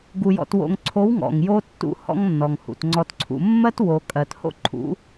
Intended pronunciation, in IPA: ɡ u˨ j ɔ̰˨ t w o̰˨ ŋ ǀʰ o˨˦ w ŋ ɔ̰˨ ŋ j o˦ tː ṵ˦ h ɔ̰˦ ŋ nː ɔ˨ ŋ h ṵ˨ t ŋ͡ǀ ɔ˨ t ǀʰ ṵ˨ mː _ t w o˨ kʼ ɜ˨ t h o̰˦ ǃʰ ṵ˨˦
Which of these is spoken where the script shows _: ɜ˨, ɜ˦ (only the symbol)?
ɜ˦